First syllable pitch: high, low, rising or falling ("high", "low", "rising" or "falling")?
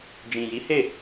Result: low